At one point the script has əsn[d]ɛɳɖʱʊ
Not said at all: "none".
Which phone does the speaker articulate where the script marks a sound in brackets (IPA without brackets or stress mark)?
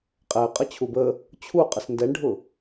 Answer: d